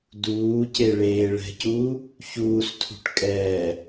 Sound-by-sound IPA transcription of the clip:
d uː c e ɭ eː ɭ ɛ̤ c uː | ç uː s tʰ ṳ ʈ kʼ ɛː

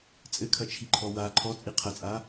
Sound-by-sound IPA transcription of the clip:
t͡sʼ ɘ kʰ ɐ t͡ʃʰ i ǃʰ ɔ w a ǃʰ ɔ t͡sʼ i qʰ ɐ t͡sʼ a

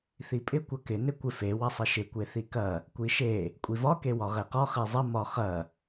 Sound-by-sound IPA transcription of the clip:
θ i pʼ ɪ kʷ ɐ k ɪ n ɪ kʷ ɪ f e w ɐ sˤ ɪ ʃ ɪ kʷ e θ i k ɐ | kʷ i ʃ e | kʷʼ i v ɒ k e w ɒ ʁ e q ɒ χ e zˤ ə m ɒ χ ɐ

